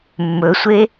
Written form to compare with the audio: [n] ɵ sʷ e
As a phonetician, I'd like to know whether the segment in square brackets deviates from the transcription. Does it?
yes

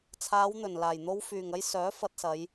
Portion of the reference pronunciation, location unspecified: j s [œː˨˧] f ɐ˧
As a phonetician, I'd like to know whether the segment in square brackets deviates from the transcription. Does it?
yes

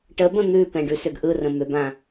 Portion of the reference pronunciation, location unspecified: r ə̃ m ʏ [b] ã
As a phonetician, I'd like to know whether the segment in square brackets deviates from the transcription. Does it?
no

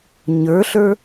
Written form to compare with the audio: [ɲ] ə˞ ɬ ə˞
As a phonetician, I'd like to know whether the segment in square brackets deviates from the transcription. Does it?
no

